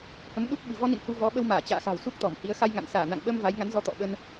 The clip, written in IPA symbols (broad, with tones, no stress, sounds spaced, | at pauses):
h ə˨˦ m ɗ u˦˥ k̚ ɓ ɨ̤˨˩ v ɔ˧ n ḭ˧˨ n h u˧ v ɔ˨˦ ɓ ə˧ w m aː˧˩ t͡ɕ a̰ː˧˨ x a̤˨˩ w s u˦˥ k̚ t̪ ɔ˧˩ m h i˨˦ ə̯ x a˧ j ŋ a̰˧˨ n s aː˧˩ n a̰˧˨ ŋ ɓ ə˧ m v a˨˦ j ŋ a˨˦ n z ɔ˧ t̪ ɔ̰˧˨ ɓ ə˧ n